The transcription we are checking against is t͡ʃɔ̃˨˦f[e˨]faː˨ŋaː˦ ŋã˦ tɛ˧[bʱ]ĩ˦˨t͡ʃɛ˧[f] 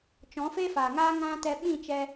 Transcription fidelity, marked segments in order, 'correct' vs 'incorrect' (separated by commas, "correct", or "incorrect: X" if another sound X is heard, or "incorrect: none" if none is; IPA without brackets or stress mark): incorrect: e˦, incorrect: ɓ, incorrect: none